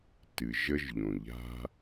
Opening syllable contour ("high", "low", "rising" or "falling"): low